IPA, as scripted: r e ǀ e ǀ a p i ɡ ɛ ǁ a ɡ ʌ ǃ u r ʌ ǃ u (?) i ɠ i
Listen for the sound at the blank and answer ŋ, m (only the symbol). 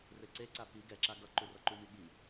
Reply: m